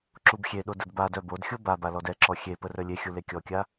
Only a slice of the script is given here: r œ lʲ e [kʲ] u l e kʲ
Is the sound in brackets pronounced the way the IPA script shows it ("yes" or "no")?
no